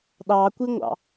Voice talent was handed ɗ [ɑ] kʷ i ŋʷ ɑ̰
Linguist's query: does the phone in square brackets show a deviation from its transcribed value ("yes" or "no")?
no